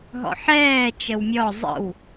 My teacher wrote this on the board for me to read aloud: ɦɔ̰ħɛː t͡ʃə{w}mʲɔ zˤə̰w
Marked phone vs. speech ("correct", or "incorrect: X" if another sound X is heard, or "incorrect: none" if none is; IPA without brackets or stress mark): correct